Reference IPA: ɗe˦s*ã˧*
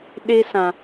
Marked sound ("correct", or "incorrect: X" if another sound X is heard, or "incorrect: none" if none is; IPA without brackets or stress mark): correct